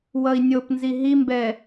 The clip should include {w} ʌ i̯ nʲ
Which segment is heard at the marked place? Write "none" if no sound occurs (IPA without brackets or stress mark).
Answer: w